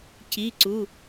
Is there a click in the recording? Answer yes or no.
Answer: yes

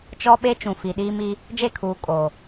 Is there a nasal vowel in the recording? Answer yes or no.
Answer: yes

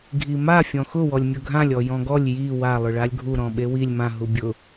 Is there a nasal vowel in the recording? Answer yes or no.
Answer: yes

